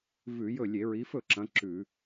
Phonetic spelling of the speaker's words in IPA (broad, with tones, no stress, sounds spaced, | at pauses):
v ʉ˧˩˧ j ɵ˥˩ lʲ e˧˩˧ ɹ i˨˦ f ɵ˥˩ ǁ ɐ̃˨˦ ǁ ʉ˧˩˧